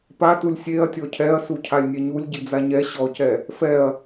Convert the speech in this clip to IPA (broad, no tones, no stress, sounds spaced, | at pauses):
p a t u lʲ sʲ e ɐ̯ tʲ ɔ cʰ ɛ ɐ̯ s u cʰ a lʲ nʲ ɛ ɲ u lʲ ɟ i d͡z a ɲ ɛ ɕ ɔ c ɛ | f ɛ ɐ̯